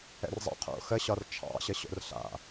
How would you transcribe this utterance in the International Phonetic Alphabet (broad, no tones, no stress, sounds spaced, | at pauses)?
ɛ̰ r zˤ a̰ qʰ o̰ x ə ɕ ɒ r t͡ʃʰ ɑ̰ ɕ ə ɕ o̰ r ɬ a̰